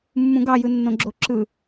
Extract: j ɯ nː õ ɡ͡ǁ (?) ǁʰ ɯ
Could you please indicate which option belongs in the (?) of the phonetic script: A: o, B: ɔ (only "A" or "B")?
A